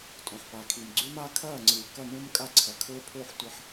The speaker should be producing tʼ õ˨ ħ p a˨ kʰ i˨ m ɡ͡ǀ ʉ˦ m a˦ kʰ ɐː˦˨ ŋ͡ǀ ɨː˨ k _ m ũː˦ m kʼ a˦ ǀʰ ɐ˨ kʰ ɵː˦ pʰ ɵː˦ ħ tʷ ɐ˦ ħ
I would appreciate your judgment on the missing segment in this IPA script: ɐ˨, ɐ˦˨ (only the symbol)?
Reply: ɐ˦˨